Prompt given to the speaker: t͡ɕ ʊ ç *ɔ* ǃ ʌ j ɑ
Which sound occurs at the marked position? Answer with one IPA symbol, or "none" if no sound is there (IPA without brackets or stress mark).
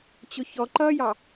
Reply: ɔ